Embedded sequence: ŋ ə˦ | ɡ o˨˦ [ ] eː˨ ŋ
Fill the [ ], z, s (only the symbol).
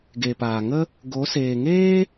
s